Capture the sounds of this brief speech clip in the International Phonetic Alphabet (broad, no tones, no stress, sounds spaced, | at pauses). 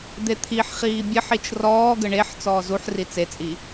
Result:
d̪ e t̪ʰ i ħ χ iː bʲ ɘ ħ i t͡ʃ r ɔː ɡ ə ɳ e ħ t͡s ɔː z u ħ r i t͡s e t͡sʼ i